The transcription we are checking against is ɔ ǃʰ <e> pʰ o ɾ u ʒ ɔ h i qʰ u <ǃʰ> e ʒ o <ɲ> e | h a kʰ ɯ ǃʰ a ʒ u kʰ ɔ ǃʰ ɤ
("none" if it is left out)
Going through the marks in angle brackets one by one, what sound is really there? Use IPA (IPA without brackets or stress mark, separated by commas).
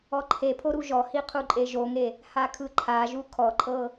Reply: e, ǃʼ, ŋ